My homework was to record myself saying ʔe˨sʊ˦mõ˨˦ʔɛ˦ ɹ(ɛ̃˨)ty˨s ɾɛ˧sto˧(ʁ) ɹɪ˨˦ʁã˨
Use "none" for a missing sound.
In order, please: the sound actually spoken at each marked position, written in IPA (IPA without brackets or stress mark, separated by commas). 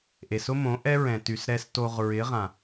ɛ̃˨, ʁ